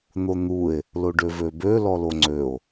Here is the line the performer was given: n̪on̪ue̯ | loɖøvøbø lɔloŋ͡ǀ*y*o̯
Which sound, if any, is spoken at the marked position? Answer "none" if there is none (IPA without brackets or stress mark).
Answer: ø